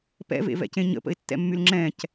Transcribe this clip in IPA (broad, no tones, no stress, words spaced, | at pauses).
pɛ̰vḛvɛ̰cẽ ɲə̰pə̰ɪ̯tːɛ̰mːyl ŋ͡ǁɛ̃c